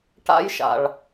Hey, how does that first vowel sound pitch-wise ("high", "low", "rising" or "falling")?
high